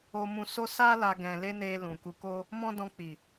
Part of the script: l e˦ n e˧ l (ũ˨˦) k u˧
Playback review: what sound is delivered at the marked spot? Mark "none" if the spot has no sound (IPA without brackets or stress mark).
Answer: ũ˨